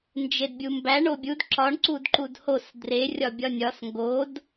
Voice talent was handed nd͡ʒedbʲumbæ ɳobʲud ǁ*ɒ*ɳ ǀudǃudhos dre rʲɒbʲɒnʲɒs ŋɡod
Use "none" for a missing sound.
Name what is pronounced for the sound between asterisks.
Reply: ɒ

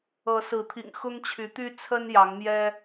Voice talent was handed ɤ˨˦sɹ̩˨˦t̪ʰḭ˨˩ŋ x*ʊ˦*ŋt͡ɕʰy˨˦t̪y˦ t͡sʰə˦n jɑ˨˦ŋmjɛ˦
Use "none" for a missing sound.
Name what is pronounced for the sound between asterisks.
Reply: ʊ˦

